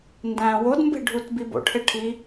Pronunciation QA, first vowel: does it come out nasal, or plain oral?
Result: nasal